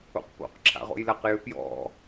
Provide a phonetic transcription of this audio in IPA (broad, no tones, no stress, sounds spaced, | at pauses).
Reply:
o̰ q p o̰ q ǁʰ a̰ ʁ o̰ j l a q j ʏ p j ɔ̰